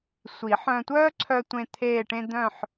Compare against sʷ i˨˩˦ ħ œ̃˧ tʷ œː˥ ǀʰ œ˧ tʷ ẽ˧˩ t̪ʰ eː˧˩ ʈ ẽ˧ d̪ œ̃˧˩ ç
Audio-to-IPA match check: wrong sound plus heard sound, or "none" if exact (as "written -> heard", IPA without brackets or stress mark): ç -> ħ